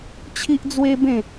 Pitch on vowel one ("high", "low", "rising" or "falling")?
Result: high